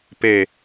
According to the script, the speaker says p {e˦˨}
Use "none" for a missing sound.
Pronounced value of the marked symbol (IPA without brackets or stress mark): e˦˨